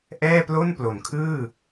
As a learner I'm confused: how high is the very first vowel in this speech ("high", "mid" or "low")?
mid